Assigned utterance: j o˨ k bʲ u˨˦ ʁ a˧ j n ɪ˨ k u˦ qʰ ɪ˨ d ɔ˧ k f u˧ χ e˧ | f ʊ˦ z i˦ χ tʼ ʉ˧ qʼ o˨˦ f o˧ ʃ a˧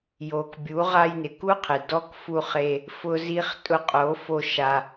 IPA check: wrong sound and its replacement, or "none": ʉ˧ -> ʊ˧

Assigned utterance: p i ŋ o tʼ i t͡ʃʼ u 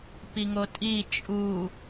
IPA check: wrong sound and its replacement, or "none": none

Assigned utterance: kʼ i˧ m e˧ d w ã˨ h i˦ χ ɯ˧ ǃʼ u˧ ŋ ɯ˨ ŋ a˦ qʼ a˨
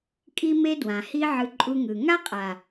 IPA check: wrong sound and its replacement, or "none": χ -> ʕ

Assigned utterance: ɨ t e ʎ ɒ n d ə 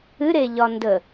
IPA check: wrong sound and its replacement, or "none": t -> ɾ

